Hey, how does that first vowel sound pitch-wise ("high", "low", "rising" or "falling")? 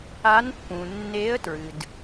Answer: rising